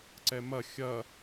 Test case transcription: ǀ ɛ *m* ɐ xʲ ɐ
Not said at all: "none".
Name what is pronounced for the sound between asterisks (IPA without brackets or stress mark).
m